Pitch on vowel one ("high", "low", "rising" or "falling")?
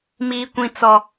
high